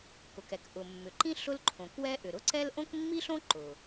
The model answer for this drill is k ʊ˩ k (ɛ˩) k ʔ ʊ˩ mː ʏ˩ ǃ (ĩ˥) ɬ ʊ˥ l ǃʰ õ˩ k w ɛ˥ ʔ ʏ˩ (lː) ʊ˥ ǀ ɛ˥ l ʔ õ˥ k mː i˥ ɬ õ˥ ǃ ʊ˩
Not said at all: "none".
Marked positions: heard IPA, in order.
ɛ˩, ĩ˥, ɾ

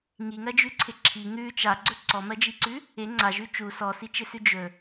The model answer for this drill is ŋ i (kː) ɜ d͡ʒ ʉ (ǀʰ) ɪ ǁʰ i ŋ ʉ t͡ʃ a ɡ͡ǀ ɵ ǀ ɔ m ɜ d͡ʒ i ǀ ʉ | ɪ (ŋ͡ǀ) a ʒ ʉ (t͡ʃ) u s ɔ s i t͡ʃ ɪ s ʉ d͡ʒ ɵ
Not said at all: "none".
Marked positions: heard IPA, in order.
ŋ, ǀʰ, ŋ͡ǀ, t͡ʃ

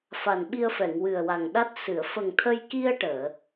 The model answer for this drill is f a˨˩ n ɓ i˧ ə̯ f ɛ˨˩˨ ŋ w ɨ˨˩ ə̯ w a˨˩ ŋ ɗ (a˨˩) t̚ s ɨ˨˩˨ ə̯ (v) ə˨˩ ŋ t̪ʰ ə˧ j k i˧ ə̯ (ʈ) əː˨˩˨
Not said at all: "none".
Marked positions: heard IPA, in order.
a˦˥, f, ʈ

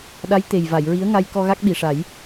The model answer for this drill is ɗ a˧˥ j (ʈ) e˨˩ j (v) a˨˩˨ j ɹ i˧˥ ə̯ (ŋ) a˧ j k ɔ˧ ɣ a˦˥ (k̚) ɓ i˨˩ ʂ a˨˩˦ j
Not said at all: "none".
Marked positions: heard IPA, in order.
t̪, v, ŋ, k̚

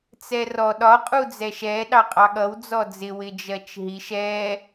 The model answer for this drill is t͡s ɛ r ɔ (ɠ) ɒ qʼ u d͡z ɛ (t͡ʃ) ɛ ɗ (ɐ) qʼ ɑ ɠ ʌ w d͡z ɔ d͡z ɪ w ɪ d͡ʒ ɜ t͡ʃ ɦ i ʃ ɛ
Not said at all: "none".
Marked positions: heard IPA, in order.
ɗ, ʃ, ɑ

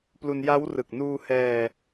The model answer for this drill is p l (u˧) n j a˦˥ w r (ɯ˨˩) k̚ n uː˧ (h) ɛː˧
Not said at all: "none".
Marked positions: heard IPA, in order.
u˧, ɯ˨˩, h

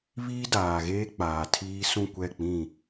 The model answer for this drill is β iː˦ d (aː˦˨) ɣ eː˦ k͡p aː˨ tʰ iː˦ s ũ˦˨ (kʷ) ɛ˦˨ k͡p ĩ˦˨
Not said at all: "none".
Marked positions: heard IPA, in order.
aː˨, kʷ

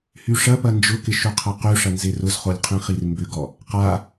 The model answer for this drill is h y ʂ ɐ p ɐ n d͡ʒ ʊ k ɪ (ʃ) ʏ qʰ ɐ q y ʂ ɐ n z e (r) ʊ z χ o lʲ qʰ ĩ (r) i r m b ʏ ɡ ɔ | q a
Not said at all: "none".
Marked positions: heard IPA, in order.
ʃ, r, χ

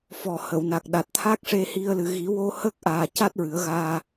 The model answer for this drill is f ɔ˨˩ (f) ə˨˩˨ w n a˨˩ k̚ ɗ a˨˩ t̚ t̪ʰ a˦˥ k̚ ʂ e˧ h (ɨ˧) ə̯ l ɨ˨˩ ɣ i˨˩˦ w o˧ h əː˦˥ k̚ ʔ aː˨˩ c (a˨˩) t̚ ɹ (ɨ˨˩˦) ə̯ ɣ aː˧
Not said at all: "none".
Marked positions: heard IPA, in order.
h, i˧, a˦˥, ɨ˨˩˦

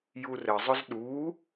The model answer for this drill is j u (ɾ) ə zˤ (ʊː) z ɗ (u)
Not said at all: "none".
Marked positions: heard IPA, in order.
r, ʊ, u

